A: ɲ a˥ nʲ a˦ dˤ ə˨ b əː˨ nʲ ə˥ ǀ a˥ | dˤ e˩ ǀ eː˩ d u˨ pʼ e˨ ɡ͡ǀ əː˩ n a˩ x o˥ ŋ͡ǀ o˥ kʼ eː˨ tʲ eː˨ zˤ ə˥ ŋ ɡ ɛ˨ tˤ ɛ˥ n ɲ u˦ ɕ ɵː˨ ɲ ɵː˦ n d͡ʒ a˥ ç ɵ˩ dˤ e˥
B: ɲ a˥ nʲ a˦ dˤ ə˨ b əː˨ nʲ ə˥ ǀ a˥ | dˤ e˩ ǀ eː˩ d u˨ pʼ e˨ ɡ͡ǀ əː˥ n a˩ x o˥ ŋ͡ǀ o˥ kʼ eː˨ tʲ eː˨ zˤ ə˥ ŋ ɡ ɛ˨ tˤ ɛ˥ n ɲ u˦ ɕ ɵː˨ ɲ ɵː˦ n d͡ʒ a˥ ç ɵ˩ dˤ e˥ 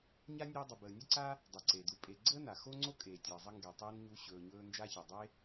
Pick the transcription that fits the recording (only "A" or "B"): B